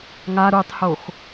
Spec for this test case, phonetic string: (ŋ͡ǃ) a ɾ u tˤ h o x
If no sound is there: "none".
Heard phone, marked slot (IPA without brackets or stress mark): ŋ